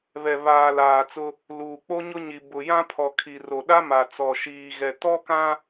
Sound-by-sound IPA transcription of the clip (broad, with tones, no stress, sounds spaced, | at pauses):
β ɛ˨ β aː˨ l aː˨ t͡s ʊ˦ | l uː˨ k͡p o˦ ɲ ʊ˦ ɲ i˨ b ʊ˨ j ã˦ pʰ ɔ˨ kʰ i˨ r o˨ ɗ a˦ m a˨ t͡s ɔ˨ ʃ iː˨ ɣ ɛ˨ t ɔ˦ k ã˦